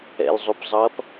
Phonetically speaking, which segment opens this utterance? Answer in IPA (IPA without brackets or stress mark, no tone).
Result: ɛ̰